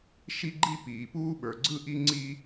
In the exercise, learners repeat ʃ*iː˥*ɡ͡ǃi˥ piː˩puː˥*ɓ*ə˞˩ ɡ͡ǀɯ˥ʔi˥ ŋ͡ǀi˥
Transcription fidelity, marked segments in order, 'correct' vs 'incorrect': incorrect, correct

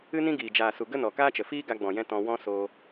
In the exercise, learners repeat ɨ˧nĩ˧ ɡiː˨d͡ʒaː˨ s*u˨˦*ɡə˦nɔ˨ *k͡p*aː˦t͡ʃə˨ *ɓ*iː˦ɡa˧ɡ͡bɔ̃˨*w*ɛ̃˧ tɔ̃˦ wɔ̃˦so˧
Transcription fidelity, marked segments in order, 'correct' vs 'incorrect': incorrect, incorrect, incorrect, incorrect

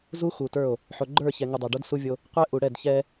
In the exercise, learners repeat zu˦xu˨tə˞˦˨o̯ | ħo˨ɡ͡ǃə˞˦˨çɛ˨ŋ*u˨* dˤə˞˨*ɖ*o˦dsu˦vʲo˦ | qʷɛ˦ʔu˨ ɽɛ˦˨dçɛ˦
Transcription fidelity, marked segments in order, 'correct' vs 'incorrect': correct, correct

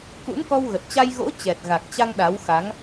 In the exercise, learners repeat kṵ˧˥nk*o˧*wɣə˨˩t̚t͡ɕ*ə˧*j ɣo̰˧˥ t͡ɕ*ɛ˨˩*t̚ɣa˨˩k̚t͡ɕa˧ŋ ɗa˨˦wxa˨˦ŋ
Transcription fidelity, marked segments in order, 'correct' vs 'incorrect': incorrect, incorrect, correct

